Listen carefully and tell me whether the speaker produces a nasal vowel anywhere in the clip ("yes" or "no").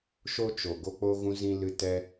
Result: yes